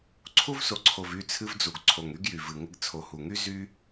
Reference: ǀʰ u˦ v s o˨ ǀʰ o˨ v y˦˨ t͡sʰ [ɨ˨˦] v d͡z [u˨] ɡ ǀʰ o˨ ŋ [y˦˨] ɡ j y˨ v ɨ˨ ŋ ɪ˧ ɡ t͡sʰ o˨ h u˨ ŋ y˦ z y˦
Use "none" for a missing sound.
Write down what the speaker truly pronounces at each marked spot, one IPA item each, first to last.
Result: ɨ˧, u˨, y˦

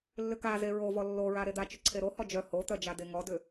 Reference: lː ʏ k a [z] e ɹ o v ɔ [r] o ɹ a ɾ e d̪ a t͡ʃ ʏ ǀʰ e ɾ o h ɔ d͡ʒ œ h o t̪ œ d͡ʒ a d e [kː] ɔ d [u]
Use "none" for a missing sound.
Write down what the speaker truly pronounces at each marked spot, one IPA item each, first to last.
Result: z, lː, ŋ, ʏ

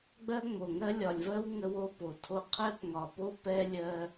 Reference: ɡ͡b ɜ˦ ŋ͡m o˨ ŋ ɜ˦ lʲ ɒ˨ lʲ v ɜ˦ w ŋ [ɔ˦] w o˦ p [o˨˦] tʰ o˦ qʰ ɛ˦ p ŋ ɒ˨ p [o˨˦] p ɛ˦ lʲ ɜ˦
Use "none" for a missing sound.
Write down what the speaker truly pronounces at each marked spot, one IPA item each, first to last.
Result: ə˦, o˨, o˦

